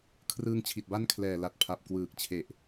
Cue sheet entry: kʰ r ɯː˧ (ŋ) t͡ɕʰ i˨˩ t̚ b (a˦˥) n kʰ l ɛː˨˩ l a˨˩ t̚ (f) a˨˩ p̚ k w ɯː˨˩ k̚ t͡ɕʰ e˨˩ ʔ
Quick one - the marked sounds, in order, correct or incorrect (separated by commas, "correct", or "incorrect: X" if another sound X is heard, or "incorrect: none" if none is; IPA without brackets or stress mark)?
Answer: correct, correct, incorrect: pʰ